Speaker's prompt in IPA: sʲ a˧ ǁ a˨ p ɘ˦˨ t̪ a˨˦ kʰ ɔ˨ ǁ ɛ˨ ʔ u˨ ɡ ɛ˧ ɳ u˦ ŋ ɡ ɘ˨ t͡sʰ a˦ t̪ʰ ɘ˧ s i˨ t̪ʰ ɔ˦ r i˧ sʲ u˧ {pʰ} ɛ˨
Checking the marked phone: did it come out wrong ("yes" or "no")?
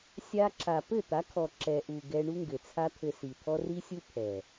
no